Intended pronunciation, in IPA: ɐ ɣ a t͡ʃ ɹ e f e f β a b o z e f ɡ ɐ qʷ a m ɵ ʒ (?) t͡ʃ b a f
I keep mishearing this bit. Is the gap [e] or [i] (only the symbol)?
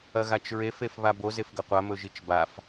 i